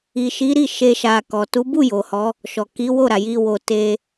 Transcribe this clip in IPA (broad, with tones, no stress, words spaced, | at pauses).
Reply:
i˨ʃi˨˦ ɾi˦˨ ʃe˧ʃa˨ kɔ˨ tu˨˦bu˦˨ jo˨hɔ˨˦ | ʃɔ˨ ki˨˦ wo˦˨ɾa˨ji˧ wo˧ te˧